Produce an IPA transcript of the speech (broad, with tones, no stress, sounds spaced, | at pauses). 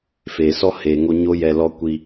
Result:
f eː˨ s ɔ˦ h eː˨ ŋ o˧ ɲ o˦ j ɛ˧ l ɔ˦ kʷ i˧